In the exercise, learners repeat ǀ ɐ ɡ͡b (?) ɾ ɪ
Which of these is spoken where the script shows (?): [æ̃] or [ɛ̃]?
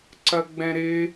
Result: ɛ̃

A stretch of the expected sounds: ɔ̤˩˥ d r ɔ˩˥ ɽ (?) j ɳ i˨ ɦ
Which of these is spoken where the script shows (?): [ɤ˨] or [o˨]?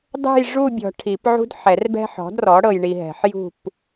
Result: ɤ˨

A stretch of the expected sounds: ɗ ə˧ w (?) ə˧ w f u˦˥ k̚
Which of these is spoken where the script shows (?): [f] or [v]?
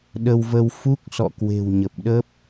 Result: v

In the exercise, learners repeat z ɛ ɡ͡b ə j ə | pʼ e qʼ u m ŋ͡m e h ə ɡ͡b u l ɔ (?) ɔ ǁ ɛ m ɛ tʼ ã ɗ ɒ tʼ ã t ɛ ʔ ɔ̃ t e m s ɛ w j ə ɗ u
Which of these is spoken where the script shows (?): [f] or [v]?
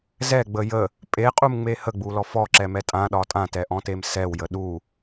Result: f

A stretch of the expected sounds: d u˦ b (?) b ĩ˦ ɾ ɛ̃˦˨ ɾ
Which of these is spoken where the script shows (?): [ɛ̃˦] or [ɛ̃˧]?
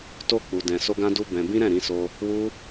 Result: ɛ̃˧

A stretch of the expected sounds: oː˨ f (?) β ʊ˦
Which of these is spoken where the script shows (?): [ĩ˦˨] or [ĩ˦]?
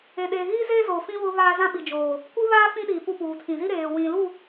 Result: ĩ˦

